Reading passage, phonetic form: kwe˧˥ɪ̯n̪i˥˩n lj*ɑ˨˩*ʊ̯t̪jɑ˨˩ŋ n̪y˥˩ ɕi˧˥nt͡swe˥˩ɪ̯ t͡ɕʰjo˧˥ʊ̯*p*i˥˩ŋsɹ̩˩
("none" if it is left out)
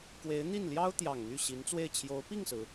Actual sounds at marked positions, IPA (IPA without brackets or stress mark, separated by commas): ɑ˥, p